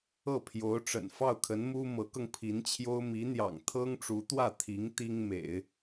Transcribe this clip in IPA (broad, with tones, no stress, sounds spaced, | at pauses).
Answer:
ɤ˥˩ pʰ j o˧˥ ʊ̯ ʈ͡ʂ ə̰˨˩ n f ɑ˥˩ ʊ̯ kʰ ə˧˥ n m u˥ m ɤ˧˥ k ɤ˧ ŋ pʰ i˧˥ n t͡ɕʰ j o˥ ʊ̯ m i˧˥ n̪ j ɑ̰˨˩ ŋ t̪ʰ ɤ˥ ŋ ʈ͡ʂ u˧˥ t̪ w ä˥˩ t̪ʰ i˧˥ ŋ t̪ i˥ ŋ m ḛ˨˩˦ ɪ̯